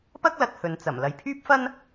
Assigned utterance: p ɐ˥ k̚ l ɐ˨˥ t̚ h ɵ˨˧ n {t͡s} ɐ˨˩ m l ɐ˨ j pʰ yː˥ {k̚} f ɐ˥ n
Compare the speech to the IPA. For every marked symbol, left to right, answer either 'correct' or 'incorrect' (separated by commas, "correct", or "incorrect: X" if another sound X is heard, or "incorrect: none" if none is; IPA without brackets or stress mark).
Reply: correct, incorrect: p̚